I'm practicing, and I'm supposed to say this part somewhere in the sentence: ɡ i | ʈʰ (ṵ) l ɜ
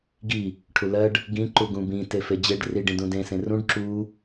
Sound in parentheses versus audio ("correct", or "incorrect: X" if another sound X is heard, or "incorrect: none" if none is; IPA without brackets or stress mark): incorrect: u